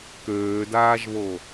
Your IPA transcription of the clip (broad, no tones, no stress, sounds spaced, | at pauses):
k øː d aː ʒ β o